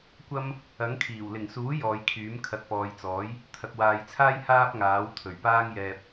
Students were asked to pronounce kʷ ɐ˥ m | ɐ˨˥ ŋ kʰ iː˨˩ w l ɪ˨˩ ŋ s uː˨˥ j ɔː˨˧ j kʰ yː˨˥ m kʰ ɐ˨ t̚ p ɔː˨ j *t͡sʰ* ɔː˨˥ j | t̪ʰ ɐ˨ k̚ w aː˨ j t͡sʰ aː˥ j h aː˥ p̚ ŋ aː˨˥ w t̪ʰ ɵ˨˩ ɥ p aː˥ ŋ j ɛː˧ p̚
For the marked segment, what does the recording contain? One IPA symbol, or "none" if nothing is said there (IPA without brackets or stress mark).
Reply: t͡s